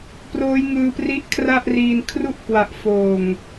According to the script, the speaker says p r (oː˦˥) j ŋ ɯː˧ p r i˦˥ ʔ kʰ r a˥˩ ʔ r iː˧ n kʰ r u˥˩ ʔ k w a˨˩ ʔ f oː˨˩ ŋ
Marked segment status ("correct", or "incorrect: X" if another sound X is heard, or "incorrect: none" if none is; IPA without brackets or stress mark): correct